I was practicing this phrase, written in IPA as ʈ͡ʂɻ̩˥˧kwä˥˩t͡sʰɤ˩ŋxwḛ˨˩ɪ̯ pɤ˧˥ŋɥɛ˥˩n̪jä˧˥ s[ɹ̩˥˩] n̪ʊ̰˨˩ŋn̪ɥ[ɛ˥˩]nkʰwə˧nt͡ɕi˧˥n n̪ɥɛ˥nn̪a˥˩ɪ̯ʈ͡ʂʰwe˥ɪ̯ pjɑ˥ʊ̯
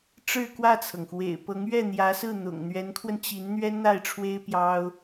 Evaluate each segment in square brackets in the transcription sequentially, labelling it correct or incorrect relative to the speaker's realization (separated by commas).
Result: correct, incorrect